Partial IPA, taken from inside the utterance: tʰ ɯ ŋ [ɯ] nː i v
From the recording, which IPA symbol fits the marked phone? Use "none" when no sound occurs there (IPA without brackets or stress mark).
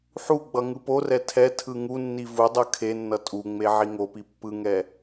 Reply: u